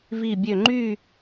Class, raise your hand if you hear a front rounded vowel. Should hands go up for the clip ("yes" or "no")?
yes